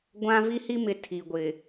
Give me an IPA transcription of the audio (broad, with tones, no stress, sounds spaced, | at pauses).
ɡʷ ã˦ v i˦ h i˦ m ɪ˨ tʰ i˨ ɡʷ ɪ˨